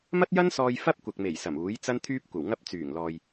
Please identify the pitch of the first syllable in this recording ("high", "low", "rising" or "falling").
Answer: high